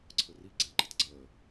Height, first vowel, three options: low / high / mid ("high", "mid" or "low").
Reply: mid